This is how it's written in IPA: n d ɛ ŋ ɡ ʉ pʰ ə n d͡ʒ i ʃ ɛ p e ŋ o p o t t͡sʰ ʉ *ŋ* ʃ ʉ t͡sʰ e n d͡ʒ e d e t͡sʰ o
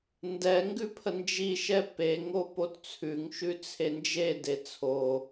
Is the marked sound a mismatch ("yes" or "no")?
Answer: no